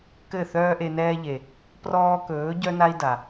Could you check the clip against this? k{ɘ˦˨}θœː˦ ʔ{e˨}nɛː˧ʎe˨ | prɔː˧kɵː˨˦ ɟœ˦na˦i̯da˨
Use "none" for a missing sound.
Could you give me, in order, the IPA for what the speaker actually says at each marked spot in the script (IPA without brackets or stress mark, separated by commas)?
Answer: ɘ˦˨, e˨